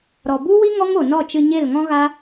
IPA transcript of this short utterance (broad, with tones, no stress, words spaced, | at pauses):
ɾɔ˨bu˦wi˦ ŋɔ˦ŋo˨nɔ˦˨t͡ʃɨ˧ ɲe˦˨lŋɔ̃˦ɣa˦